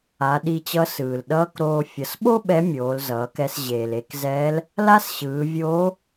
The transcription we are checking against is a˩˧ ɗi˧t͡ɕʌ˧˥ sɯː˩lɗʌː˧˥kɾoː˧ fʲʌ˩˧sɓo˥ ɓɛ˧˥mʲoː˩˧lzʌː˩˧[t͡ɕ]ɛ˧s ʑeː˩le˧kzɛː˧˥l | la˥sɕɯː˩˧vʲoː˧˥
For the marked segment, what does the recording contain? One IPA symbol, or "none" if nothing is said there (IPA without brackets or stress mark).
k